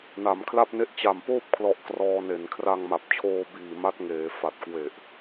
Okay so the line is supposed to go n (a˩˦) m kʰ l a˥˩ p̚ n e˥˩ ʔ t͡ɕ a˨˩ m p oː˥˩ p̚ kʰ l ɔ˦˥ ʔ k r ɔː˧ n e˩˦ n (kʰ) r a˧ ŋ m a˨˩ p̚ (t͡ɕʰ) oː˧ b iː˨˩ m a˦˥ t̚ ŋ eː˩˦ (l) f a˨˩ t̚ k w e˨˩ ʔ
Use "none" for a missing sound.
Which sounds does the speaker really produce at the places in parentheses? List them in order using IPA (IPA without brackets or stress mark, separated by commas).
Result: a˩˦, kʰ, t͡ɕʰ, none